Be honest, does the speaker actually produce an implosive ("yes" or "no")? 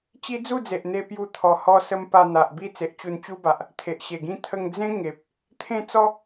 no